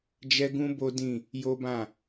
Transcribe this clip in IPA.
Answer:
d͡ʒ ɛ˦ ɡ ũ˦ b o˦ d ĩ˦˨ | j o˦ b ã˦˨

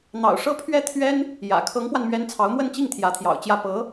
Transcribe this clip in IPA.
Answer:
n̪ ɑ̰˨˩ ʊ̯ ʂ ɤ˥ pʰ ɥ ɛ˥˩ t̪ʰ ɥ ɛ˥ n | j ä̰˨˩ kʰ ɤ˧˥ ŋ p w a˧ n m ɥ ɛ˧˥ n t͡sʰ ɑ˧˥ ʊ̯ m w ə˥˧ n t͡ɕ i˥˩ ŋ t̪ʰ j ä˧˥ t̪ʰ j ɑ̰˨˩ ʊ̯ t͡ɕ j ä˥˩ p ɤ˧˥

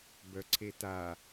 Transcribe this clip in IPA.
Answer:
b œ ǀʰ e t a

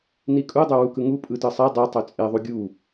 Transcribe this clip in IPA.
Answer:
n i kʼ u dˤ ø w u k ɯ ŋ u pʼ ɯ t ɯ sˤ i dˤ u tˤ ø t͡sʼ e ðˤ u ɡʲ u

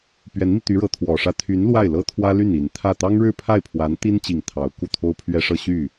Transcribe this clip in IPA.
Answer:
p ɥ ɛ˧˥ n m i˧ t̪ y˧˥ ɻ ɤ˧˥ t̪ʰ w ɔ˨˩ ʂ ä˥ t̪ʰ y˧˥ n l w a˥˩ ɪ̯ l ɤ˥ t̪ʰ w ä˥ l y˥˩ n i˨˩ n t̪ʰ ä˥˩ t̪ ɑ˥ ŋ ɻ ɻ̩˥˧ pʰ a˥˩ ɪ̯ pʰ w a˧˥ n t̪ i˥ n t͡ɕ i˨˩ ŋ t̪ʰ ɑ˧˥ ʊ̯ k u˥˩ t̪ʰ o˥ ʊ̯ pʰ ɥ ɛ˥ ʂ ɤ˥˧ ɕ y˥˩

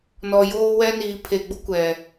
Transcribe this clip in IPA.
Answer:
n ɔ˨ j oː˦ w ɛ˦ n iː˨ pʰ e˨ ɡ͡b ʊ˦ kʷ ɛ˨

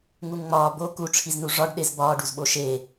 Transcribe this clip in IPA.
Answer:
ŋ u ŋ ŋ͡m ɒː b o k u ʈ͡ʂʰ i z n u ʐ ɒ ɖ ɗ e z b ɒː ɖ u z ɓ o ʃ e

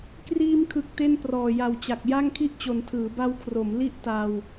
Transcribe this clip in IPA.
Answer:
k r iː˧ m kʰ ɯ˨˩ k̚ t e˥˩ n p r ɔː˨˩ j a˨˩ w t͡ɕ a˨˩ k̚ j a˥˩ ŋ kʰ i˥˩ ʔ t͡ɕ o˨˩ n tʰ ɯː˩˦ b a˧ w kʰ r o˩˦ m l i˥˩ ʔ t aː˧ w

